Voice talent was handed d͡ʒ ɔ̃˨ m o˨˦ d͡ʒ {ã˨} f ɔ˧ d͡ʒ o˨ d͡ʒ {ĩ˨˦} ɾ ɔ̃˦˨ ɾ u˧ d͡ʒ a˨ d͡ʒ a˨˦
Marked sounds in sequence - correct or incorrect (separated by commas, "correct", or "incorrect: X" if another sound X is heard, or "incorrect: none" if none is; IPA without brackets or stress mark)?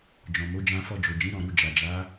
incorrect: ã˧, correct